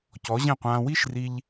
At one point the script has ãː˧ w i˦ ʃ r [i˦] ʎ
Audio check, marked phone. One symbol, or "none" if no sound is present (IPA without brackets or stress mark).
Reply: i˧